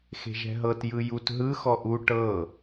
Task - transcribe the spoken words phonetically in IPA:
x e̤ ʒ ɛ̤ ɦ ɤ t j ɯ j u t ɦ ɯ x ɔ ʔ u ʈ ɤ

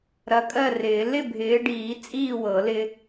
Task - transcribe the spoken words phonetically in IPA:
ɾ ɐ˨˦ kʼ ɜ˥˨ r ɪː˨˩˦ l ɪ˥˨ bʱ ɪː˨˦ ɖ iː˨˩˦ t͡sʼ iː˥˨ w ɤ˨˩˦ l ɪ˦

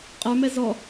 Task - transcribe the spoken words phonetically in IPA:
qʼ ə˞ m ɛ z ɔ

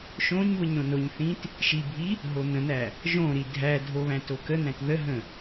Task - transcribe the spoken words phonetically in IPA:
ʃ õ ɲ β ə ɲ ɾ õ n o ɲ θ ĩ t | ʃ i bʱ i | ɦ o n̪ ə̃ n̪ æ | ʒ õ ɾ i dʱ æ dʱ o β æ̃ t o k ə n̪ æ̃ t ð ə ɦ ə̃

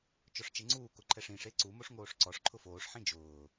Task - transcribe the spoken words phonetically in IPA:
t͡ʃ ɔ ʂ t͡ʃ e ŋ͡ǀ uː k ʊ ǃʰ ɛ ʂ ĩ ʂ e ǀ u m o ʂ ŋ oː ʂ ǀ ɔ ʂ ǃʰ ʊ f oː ʂ ħ ĩ d͡ʒ ʊː

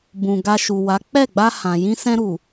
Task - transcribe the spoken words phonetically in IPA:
b ũ˨ ɡ a˧ ʃ u˨ w a˨˦ k͡p ɛ˦˨ ɡ͡b a˧ h ã˨ j ĩ˧ s ɛ̃˧ ɾ u˨

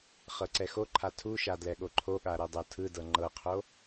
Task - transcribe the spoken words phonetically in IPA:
χ ɤ ǀ ɛ x o ǃʰ a tʰ u ʃ a d l ɛ ɠ o ǃʰ o ɠ a ɾ ɤ dˤ o tʰ ɯ d ɤ ŋ͡ǃ ɤ qʰ o

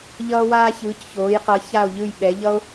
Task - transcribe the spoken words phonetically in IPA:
ʎ ʌː˦ w aː˦ ç ɯː˩˧ c ç oː˩˧ j q ʌ˩˧ ç a˦˨ o̯ ʎ ɯ˦˨ j ɓ ɛ˩˧ ʎ ʌ˦ o̯

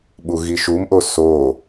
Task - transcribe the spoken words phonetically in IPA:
ɓ u ɣ i ʃ u m ʔ o s o

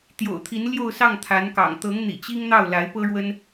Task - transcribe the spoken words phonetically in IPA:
t̪ j o̰˨˩ ʊ̯ t̪ʰ i˧˥ n l j o˥˧ ʊ̯ s ɑ˥˩ ŋ t̪ʰ a˧˥ n k ɑ̰˨˩ ŋ t̪ ɤ˧˥ ŋ n̪ ḭ˨˩ t͡ɕ i˥ ŋ n̪ ɑ˥˩ ʊ̯ l a˧˥ ɪ̯ p ɤ˥ ɻ w ə˥ n

